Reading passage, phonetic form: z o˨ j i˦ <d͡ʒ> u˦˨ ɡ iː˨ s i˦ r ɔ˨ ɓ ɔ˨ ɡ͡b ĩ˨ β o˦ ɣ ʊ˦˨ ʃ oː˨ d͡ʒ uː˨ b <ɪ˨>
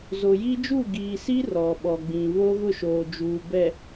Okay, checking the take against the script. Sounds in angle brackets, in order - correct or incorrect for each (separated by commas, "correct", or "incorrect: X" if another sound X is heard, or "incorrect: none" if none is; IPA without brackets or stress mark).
correct, incorrect: ɛ˨